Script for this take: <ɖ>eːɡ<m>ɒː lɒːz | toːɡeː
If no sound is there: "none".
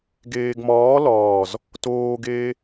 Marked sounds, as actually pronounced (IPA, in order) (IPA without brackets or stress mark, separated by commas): ɡ, m